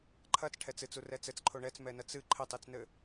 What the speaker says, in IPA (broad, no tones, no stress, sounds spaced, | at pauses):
ǃʰ ɐ t͡s ʈʰ ɛ t͡s ɨ t͡s u r ɛ t͡s ɘ t͡s ǃʰ o ɳ ɛ t͡s m ɛ n ɐ t͡s ɨ ǃʰ ɘ tˤ i t͡s n ɘ